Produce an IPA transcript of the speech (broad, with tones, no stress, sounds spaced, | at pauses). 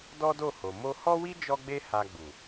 d ɔ˦ d o˦˨ h o˨ m o˧ h ɔ˦ w i˦ d͡ʒ ɔ˦ ɡ͡b e˦ h a˧ ɡ͡b u˨